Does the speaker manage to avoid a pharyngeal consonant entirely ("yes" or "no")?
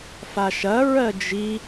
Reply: yes